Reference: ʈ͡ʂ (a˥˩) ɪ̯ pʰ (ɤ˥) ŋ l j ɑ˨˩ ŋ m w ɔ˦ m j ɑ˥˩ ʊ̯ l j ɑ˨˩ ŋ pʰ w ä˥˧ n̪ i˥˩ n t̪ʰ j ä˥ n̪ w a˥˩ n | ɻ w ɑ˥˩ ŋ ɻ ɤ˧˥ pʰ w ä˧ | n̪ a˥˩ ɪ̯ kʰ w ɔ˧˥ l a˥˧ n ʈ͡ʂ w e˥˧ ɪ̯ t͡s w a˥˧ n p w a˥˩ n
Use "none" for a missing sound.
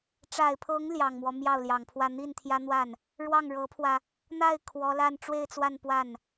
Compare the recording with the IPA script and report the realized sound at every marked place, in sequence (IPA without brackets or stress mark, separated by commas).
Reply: a˨˩, ɤ˧˥